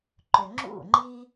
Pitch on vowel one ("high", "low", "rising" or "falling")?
low